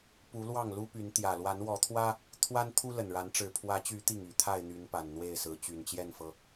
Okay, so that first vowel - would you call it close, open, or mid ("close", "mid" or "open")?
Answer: close